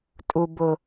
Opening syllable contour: low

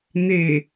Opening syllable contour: low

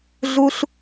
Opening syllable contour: high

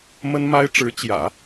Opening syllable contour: high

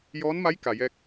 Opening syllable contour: rising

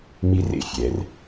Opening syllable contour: high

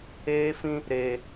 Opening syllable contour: high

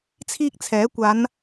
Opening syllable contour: high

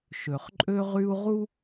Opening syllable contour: low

